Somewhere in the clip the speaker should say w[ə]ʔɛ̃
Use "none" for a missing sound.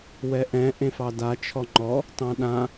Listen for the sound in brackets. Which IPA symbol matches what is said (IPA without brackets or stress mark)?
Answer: ɛ